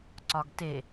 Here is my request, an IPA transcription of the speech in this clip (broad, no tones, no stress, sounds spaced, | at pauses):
ǀ ɒ ɡ t e